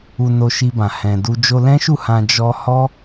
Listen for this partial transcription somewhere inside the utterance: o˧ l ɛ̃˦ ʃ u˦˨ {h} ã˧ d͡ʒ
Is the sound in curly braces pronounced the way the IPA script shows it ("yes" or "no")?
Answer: yes